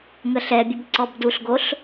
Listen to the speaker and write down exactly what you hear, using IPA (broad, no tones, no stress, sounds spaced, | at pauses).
ŋ ə ɬ ɛ bʲ ə b ǀ ɔ b d u ɬ ɡ o ɬ